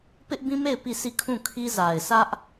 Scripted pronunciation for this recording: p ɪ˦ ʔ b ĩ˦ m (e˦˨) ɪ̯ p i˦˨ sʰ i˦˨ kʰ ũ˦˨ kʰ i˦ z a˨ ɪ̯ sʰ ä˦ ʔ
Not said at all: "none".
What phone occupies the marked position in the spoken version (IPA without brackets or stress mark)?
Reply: e˦˨